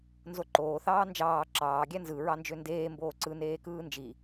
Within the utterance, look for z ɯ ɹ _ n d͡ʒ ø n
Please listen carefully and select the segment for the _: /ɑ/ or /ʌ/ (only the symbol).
ɑ